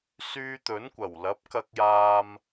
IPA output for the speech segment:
s yː˧ t̪ ɵ˨˥ n kʷ ɐ˨˩ w l ɐ˨˥ p̚ k ɐ˧ k̚ j aː˧ m

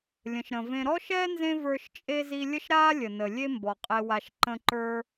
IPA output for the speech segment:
lʲ ə̃˨ ʃ ɾ ə̃˨ v ẽ˦ ɾ ɔ˥ ʃ ɛː˥ n z ẽ˦ v ə˞˦ ʃ t͡ʃʼ e˥ z i˦ lʲ ə˦ ʃ ɾ aː˥ lʲ ə˩ n ə˩ lʲ e˦ m b ɔ˩ qʼ e˨ w a˨ ʃ ǃ ə̃˦ ǃ ə˞˥

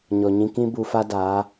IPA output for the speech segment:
ɲ ɔ˨ ɲ ĩ˧ k ĩ˦ b u˧ f a˦ d aː˨˦

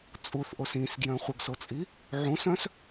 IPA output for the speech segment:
t͡sʼ u θ ʔ o s ĩ s ɡ j œ̃ χʷ ə ɡ s o t͡sʼ i | ʕ ũ s œ̃ s

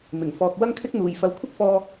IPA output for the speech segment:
m ɪ˨˩ ŋ f ɔː˨ k̚ w ɐ˥ ŋ kʰ ɪ˥ k̚ n̪ uː˨ j f ɐ˧ w kʷʰ ɪ˥ k̚ f ɔː˧

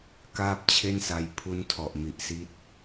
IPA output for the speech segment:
k aː˥˩ p̚ t͡ɕʰ e˥˩ n s a˧ j pʰ u˦˥ n tʰ ɔ˨˩ ʔ m i˨˩ ʔ s i˦˥ t̚

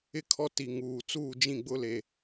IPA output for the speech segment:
ɪ˦˨ kʰ ɔ˦ t i˨ ŋ uː˨ t͡s uː˦˨ d͡ʒ ĩ˦˨ ɡ͡b ʊ˦ l e˦

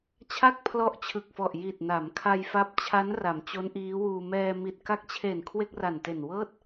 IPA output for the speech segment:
t͡ɕʰ a˥˩ k̚ pʰ l ɔ˦˥ ʔ t͡ɕʰ ɯ˨˩ k̚ f ɔ˨˩ ʔ j i˨˩ t̚ n a˩˦ m kʰ a˧ j f a˦˥ p̚ t͡ɕʰ a˦˥ n r a˩˦ m t͡ɕ o˦˥ n ʔ iː˦˥ w uː˧ m ɛː˧ m i˨˩ t̚ k a˦˥ k̚ t͡ɕʰ e˨˩ n kʰ w e˥˩ k̚ r a˨˩ n t e˨˩ n w ɤː˥˩ t̚

